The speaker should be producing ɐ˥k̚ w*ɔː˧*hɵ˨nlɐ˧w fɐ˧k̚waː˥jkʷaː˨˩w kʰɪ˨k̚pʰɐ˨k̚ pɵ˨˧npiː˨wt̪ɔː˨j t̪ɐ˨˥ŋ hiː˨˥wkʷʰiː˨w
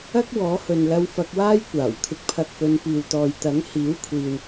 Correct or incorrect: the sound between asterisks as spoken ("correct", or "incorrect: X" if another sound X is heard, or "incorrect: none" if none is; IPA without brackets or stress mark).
incorrect: ɔː˨˥